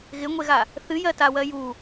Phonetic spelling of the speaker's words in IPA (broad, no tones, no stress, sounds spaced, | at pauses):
ɣ ɪ ŋʷ e ɣ a | θ ɨ j ɜ t a w ɜ j u